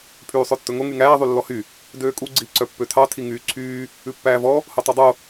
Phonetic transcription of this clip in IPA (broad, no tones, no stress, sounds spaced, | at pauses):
pʰ yː sˤ ø tː ɵ ŋ o ŋ y ŋ æː ðˤ y lː ɔ h y | d øː kʼ u ɡ͡ǀ iː ǀ œ pː ø tʰ ɑ tʰ i ŋ yː ǀʰ yː | ʉ pː æː v ɔ | h o tˤ ɑ dˤ o